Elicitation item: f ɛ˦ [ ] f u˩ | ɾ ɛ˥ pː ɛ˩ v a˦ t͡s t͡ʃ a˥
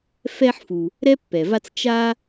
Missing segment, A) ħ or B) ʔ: A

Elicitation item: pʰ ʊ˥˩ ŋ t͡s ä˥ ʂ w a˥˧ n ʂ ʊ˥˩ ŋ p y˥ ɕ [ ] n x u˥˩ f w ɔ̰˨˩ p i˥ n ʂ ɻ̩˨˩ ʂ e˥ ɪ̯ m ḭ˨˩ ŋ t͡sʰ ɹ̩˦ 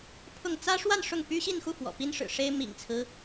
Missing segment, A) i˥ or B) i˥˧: B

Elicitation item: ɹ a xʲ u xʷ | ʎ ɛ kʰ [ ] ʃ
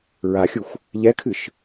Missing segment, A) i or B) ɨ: B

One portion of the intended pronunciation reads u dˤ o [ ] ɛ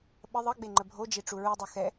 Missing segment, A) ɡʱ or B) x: B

